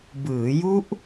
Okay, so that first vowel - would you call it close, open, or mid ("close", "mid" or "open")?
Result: close